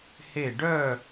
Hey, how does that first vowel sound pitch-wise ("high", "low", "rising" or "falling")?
falling